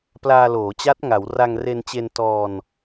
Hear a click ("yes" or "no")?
no